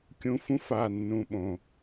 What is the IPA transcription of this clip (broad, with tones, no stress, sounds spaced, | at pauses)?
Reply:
kʲ ũ˧ f ũ˦ f a˦˨ nː ũ˨ ɓ õ˨